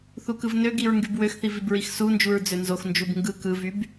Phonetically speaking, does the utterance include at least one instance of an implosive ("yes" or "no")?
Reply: no